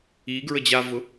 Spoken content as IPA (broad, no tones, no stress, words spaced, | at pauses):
iɡɹə d͡ʑavʊ